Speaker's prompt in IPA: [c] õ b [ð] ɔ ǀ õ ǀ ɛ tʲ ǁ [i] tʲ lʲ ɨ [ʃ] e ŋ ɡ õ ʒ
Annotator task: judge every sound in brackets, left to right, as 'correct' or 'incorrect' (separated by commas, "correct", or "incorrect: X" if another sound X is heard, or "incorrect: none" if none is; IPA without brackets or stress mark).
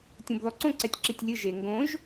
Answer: incorrect: tʲ, correct, correct, incorrect: ʒ